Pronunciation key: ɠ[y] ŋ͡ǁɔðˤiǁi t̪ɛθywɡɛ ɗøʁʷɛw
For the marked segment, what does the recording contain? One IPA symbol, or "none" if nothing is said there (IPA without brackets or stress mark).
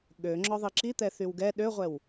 ø